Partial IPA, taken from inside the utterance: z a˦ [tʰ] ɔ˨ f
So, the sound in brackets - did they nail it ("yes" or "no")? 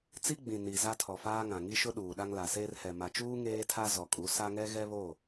yes